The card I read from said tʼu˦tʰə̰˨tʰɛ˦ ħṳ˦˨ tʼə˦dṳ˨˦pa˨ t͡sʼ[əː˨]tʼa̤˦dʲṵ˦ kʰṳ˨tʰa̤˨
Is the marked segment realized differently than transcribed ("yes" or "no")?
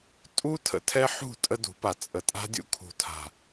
yes